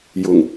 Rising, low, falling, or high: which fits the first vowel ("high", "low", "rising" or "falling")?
low